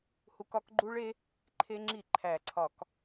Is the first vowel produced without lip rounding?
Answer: no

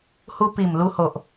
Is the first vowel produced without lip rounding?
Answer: no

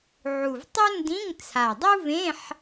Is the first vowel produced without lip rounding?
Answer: no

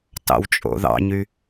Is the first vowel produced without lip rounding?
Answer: yes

